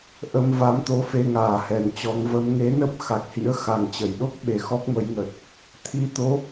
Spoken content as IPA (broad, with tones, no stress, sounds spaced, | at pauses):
ʔ ə˧ m v a˨˦ m t̪ o˨˦ f e˧ ŋ aː˨˩ h ɛ˨˩ n t͡ɕ ɔ˨˦ ŋ v ə˨˦ m ŋ e˨˦ n ə˦˥ p̚ x a˨˩ k̚ h ḭ˧˥ ə̯ x a˨˩ ŋ t͡ɕ ə˧˩ j ɗ o˦˥ k̚ ɓ e˨˩ x ɔ˦˥ k̚ m ə˨˦ j ŋ ə˨˩ t̚ | t̪ʰ i˧ t̪ o˨˦